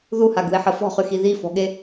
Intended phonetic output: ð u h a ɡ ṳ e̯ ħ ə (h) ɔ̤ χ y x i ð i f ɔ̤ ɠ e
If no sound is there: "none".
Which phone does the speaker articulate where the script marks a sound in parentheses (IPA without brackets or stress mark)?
f